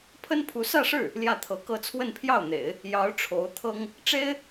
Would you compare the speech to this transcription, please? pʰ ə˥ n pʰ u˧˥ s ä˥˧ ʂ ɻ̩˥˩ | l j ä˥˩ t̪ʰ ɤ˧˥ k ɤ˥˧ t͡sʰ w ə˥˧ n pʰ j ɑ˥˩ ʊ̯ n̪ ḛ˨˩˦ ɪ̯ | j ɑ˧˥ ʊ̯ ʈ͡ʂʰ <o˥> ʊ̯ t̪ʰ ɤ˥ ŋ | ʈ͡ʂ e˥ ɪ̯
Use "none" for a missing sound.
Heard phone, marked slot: o˧˥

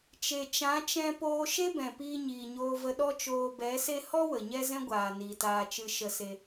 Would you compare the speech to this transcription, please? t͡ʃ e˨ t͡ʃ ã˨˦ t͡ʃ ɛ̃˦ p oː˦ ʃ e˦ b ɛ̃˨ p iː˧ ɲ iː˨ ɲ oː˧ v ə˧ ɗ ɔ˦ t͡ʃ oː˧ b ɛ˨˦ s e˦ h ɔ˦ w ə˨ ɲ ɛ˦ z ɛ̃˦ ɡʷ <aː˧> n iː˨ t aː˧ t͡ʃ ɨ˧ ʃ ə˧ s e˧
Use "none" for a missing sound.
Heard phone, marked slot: aː˨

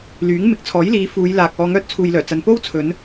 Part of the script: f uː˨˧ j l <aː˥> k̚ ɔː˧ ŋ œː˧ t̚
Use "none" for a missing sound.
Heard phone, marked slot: aː˨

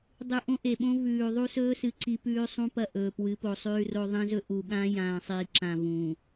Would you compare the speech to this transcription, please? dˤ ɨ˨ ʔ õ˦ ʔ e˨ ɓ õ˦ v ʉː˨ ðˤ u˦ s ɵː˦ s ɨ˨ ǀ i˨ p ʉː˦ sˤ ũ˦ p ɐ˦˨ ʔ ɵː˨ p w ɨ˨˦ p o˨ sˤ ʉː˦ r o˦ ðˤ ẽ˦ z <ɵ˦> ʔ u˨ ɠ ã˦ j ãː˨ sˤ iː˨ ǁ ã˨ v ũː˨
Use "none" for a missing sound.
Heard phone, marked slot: ɵ˦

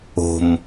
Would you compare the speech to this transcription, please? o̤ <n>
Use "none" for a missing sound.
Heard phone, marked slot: m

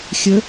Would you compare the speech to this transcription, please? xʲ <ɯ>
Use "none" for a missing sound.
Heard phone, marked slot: ə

